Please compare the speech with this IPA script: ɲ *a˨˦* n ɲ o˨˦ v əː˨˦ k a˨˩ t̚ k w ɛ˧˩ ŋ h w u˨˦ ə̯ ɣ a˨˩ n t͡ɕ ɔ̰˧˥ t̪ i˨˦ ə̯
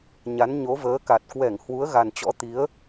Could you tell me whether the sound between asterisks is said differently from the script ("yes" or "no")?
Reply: no